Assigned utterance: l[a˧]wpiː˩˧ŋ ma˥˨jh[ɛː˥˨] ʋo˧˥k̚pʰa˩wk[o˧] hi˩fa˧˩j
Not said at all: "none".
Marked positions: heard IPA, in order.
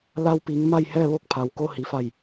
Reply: a˧, ɛː˥˨, o˧

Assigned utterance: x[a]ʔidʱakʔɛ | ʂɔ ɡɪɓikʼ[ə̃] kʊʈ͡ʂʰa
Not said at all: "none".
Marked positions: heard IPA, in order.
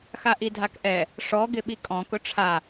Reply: a, ɔ̃

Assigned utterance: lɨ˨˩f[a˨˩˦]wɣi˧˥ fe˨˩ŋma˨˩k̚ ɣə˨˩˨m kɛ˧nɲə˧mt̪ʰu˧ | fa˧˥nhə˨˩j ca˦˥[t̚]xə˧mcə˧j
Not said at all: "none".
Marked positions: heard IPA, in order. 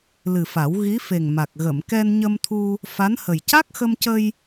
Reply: a˨˩˦, k̚

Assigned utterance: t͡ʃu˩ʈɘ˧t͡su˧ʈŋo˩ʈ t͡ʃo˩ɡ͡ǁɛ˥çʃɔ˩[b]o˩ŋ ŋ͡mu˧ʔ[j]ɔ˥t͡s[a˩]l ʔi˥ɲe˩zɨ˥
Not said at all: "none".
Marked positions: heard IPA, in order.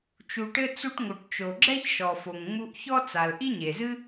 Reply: f, ç, a˩

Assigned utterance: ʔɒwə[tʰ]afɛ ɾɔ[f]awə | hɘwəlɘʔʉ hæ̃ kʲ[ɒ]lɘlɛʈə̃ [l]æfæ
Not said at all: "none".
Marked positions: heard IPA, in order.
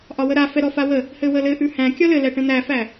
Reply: ɾ, f, ɒ, n̪

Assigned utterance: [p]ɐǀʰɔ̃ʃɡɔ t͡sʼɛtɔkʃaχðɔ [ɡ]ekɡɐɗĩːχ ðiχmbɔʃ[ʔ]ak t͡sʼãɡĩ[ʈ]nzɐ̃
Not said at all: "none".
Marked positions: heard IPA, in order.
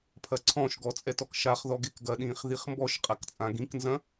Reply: pʰ, ɡ, qʼ, k

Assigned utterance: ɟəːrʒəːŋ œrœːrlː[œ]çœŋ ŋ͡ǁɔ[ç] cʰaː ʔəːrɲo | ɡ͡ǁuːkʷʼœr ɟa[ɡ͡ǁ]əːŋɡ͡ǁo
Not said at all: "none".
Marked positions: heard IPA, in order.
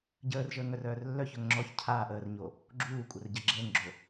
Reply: œ, ç, ɡ͡ǁ

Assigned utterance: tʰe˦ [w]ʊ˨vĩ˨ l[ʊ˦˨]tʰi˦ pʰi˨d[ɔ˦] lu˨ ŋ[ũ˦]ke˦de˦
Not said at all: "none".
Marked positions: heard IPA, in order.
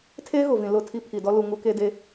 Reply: ɣ, ʊ˦˨, ɔ˦, u˦

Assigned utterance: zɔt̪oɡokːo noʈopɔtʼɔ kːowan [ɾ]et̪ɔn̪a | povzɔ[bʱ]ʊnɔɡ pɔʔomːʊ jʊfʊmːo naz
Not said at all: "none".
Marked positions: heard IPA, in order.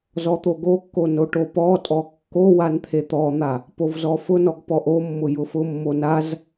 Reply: t̪ʰ, f

